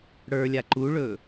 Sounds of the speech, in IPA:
ɽ ə˞ lʲ a ǃ u ɭ ɵ

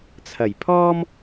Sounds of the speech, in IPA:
t͡sʰ ɐ˨˩ j pʰ ɔː˥ m

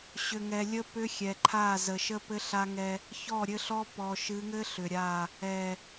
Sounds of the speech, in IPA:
ɕ ʏ˨ ŋ ɛ˨ lʲ ə˦ p ʏ˦ xʲ ɛ˨ ǃʰ a˦˨ z ə˨ ʃ ə˦ p ɘ˦ ɬ a˦ ŋ ɛ˦ | ç ɔ˦˨ ɾʲ ɘ˦ ɬ ɔ˦ p ɔ˨ ʃ ɨ˨˦ ŋ ɘ˦ ɬ ʏ˨ ɾʲ a˦˨ | ɛ˨

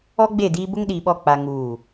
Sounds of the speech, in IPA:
ɔ˦ ɡ͡b e˦˨ d iː˦ b ʊ˦ ŋ ɗ iː˨ ɓ ɔ˦˨ k͡p a˦ ŋ uː˦˨

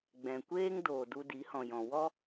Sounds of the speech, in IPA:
ɡ͡b ɛ̃˨ kʷ eː˦ ŋ d oː˨ d u˧ d i˨˦ h ɔ̃˨ j ɔ̃˨ w ɔ˦

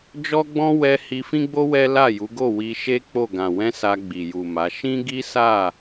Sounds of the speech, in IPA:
d͡ʒ ɔ˦ ɡ͡b ɔ̃˦ w ɛ˧ h i˧ f ĩ˦ ɡ͡b o˦ w ɛ˦ l a˦˨ j u˨˦ ɡ o˦˨ w i˧ ʃ e˦ k͡p o˦˨ ɡ ã˨ w ɛ̃˧ s a˧ ɡ͡b i˨ j u˨ m a˨˦ ʃ ĩ˦ ɡ i˦ s a˦˨

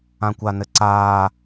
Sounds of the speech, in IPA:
ã kʷ a n ɘ ǀ aː

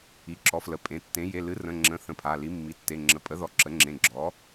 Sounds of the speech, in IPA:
i˩˧˩ ǁ ɔ˩˥ f l ə˩˧˩ pʼ ẽ˩˧˩ tː ẽ˩˥ j e˩˧˩ l ɨ˩˥ r ə̃˩˧˩ ŋ͡ǁ ə̃˩˧˩ θ ə̃˩˥ pʰ a˩˧˩ l i˩˥ mː i˩˧˩ tː e˩˧˩ ŋ͡ǁ ə˩˧˩ pʼ ə˩˥ ð ɔ˩˧˩ ǁ ə˩˥ ŋ͡ǁ ẽ˩˧˩ ɡ͡ǁ ɔ˩˥

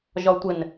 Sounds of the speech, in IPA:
ʒ ɒ tʷ ɘ n

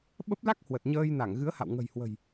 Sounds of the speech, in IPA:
ɓ ə˦˥ p̚ l a˦˥ k̚ h w ə˨˩ t̚ ɲ əː˧ j n a˧˩ ŋ ɣ ɨ˨˦ ə̯ h a̰˧˨ w ŋ ə̤˨˩ j h w ə̤˨˩ j

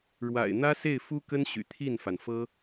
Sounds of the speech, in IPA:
ɻ w a̰˨˩ ɪ̯ n̪ ä˥ s e˥˩ ɪ̯ f u˥ k ə˥ n ɕ y̰˨˩ t̪ʰ i˥˩ n f a˩ n f ɤ˥

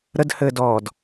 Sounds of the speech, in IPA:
ɾ ə d h ɘː d ɔː d

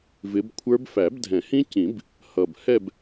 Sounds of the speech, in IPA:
v ɪ˨˦ b kʷʰ ə˞˦˥ b f æ˨˩˦ b dʱ ɛ̃˨˩˦ h ĩ˦˥ c ĩ˨˩˦ b | h ʌ˨˩ b h ɛ˦˨ b

